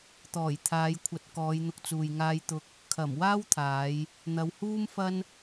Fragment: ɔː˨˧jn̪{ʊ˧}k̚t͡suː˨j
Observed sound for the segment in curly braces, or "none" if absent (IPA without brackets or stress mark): ʊ˧